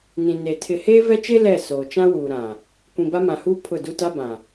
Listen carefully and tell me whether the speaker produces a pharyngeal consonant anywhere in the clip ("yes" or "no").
no